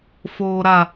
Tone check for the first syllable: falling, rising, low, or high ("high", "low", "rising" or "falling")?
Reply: low